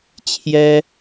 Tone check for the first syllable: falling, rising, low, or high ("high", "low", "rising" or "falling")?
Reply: high